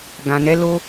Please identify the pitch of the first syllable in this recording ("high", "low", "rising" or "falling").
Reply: low